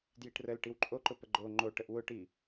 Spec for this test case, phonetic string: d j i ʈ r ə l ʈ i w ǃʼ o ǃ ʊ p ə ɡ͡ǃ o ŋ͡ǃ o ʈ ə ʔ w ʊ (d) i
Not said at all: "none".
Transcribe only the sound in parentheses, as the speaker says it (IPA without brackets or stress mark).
ʈ